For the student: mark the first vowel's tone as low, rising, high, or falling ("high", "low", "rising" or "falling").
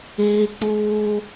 high